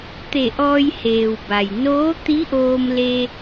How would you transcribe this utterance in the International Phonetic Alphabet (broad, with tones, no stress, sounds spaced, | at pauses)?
t̪ e˧˩ ʔ ɔː˧ j h eː˩ w b a˩ j n oː˧˥ t̪ i˧˥ ʔ oː˧ m l e˧